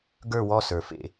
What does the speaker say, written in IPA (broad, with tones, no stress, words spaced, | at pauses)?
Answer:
ɡə˞˦˨wɔ˦˨sə˞˩fḛ˧˩˧